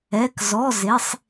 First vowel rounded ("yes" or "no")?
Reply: no